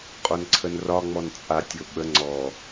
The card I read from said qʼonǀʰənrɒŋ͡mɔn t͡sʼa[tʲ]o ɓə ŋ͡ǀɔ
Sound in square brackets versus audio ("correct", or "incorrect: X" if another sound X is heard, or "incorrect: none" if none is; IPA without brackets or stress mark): correct